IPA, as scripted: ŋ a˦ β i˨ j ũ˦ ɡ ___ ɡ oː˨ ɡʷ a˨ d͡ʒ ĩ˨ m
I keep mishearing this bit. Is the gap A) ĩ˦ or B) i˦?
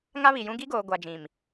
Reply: B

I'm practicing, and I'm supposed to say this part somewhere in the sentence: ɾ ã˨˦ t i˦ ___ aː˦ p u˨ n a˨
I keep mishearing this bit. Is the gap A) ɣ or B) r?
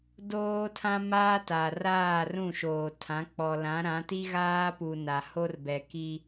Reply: A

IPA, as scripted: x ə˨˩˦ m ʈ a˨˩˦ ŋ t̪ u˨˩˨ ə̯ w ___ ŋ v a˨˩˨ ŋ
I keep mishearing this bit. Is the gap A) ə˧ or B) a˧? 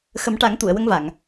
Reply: A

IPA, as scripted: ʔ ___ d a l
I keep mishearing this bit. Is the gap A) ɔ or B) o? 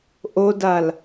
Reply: B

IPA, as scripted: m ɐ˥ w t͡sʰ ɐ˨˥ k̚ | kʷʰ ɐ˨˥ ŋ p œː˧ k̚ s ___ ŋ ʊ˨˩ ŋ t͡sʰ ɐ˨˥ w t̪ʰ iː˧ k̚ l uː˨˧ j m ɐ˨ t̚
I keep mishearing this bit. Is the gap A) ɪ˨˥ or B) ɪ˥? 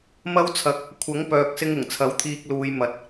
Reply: B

